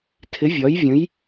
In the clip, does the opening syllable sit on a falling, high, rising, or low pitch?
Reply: rising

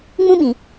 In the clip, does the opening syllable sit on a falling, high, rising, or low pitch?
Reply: high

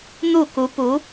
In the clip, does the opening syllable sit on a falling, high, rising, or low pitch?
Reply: falling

